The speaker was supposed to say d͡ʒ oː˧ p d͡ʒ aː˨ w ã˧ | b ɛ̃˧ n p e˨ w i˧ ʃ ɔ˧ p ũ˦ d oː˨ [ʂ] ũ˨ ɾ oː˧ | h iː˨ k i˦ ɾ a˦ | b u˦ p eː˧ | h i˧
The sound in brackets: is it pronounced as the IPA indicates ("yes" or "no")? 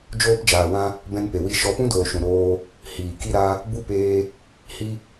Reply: no